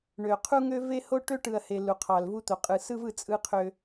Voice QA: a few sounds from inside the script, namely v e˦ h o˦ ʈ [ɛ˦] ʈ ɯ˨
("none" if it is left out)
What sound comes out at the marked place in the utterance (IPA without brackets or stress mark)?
ø˦